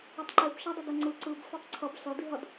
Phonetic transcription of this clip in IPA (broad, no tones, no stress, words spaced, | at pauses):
ʌtˤǃeb ʃadˤʌdʌ ŋ͡ǀɯ ǀɯb fetˤǀʰʌb ɬʌ diɦʌd